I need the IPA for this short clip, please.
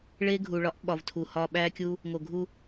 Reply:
ɭ e˦ ɡʱ u˨ ɭ ɒ˦ ʔ ɓ ɒ˨ v tʰ u˨ h ɒ˧ ɓ æ˦ kʲ u˦ | ŋ o˨ ɡʱ u˧

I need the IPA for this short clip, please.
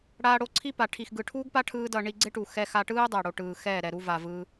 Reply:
ɽ aː˧ ɽ o˧ ǀʰ i˦ p a˨ ʈʰ i˨ x ɡ ɯ˨ ʈʰ uː˦ ɡ p a˦ ʈʰ ɯː˦ d ʌ˧ ɳ i˧ ɡ͡ǀ e˦ ʈ u˨ x ɛ˧ x a˧ ʈ ɯː˦ dˤ a˨ ɽ o˨ ʈ ɯː˨ x ɛː˦˨ ɾ ɛ˨ ɾ u˧ v a˨ v ɯː˧

